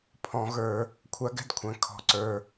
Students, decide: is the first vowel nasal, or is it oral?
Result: nasal